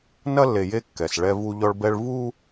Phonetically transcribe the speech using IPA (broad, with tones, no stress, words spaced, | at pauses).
nɐ˦lːe˨je˦ kːɛ˨s ɭɛ˦vu˦ ʎɔ˦ɭbɛ˦ɭ vu˦